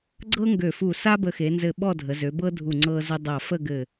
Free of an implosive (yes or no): no